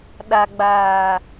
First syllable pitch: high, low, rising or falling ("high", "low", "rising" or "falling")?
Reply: low